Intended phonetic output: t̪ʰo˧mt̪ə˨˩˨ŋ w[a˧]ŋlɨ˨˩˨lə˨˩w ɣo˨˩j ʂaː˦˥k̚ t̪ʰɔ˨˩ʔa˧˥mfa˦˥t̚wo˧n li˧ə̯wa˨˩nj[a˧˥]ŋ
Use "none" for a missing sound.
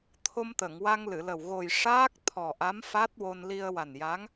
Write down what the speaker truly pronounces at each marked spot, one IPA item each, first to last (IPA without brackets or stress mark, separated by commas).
a˧, a˧˥